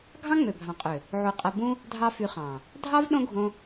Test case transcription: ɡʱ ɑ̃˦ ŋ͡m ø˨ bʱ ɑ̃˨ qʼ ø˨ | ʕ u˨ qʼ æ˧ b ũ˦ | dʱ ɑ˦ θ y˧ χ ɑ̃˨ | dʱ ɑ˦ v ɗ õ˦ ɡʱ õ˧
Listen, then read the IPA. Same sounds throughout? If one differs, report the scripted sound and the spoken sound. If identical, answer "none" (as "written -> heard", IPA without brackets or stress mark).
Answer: θ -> f